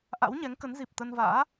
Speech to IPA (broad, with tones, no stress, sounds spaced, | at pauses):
ʔ a̰˧˥ w ɲ ɛ˨˦ ŋ k ə˨˦ n z i˨˩ p̚ t̪ ə˧ n v a̰ː˧˥